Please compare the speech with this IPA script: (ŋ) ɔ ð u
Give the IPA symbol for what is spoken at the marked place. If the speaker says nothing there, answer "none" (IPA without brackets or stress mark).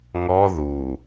ŋ